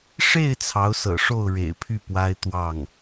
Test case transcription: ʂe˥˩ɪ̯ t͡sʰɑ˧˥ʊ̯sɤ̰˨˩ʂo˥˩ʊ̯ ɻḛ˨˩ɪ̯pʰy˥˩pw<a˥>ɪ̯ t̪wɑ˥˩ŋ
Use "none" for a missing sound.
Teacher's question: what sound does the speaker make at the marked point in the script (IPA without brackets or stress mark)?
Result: a˥